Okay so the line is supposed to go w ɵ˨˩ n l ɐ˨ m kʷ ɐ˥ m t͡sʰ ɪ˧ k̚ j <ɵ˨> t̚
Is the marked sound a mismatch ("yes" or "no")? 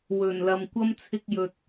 no